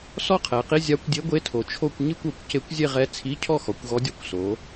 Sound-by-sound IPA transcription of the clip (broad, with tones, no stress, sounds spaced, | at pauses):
s ɔ˥˧ qʰ ɛ˩˧ q i˧˥˧ zʲ a˧˥ kʷ dʲ e˧˥ ɡʷ e˧˥˧ tʰ o˩˧ t͡ʃʰ o˥˧ kʷ ɲ i˥˧ kʷ o˩˧ kʷ c e˧˥ kʷ zʲ e˥˧ ʁ ɛ˧˥ t͡sʰ i˧˥˧ cʰ ɔ˥˧ x ɔ˩˧ kʷ ɣ ɔ˧˥ dʲ ɔ˧˥ kʷ s o˩˧